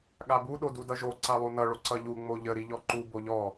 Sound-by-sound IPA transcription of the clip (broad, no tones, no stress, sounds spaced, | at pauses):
ɠ a b u ɗ o d u d ʌ ʒ o ǀ a lˠ u n ʌ ɭ o ǀ ʌ ʎ u ŋ͡m o ʎ ə ɾ i ʎ ɔ ǃ u b o ʎ ɔ